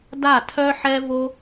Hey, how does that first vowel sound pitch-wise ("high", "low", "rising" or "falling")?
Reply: falling